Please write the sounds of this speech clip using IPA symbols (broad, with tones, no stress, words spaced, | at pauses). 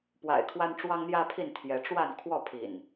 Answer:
pwa̰˨˩ɪ̯kʰwa˦n ʈ͡ʂwɑ˦ŋn̪jä˦pʰi˥˨n t̪ʰjɛ˨˦ʈ͡ʂwa˥˨n kʰwɔ˥˨pʰḭ˨˩n